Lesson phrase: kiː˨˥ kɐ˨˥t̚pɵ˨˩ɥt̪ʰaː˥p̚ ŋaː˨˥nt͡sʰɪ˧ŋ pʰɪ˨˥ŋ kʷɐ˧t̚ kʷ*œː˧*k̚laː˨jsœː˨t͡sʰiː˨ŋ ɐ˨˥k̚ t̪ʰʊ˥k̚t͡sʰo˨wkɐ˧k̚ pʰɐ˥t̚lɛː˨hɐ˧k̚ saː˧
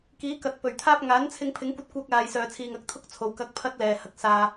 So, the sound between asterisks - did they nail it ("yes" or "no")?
yes